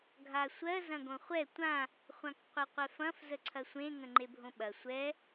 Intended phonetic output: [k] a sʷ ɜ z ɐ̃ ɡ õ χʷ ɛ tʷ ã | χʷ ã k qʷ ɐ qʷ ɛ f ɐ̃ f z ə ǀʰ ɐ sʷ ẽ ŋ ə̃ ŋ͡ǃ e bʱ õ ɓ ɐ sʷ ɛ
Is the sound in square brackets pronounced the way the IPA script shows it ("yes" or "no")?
no